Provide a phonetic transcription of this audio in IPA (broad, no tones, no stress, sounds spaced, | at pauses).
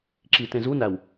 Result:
ǁ i t ẽ z u n æ w